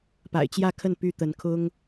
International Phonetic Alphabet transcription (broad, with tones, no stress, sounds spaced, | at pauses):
p a̰˨˩ ɪ̯ t͡ɕ j ä˥˧ kʰ ə˥˩ n p y˥ t̪ ə˧˥ n kʰ ʊ˥ ŋ